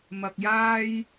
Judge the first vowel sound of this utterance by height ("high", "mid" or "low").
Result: low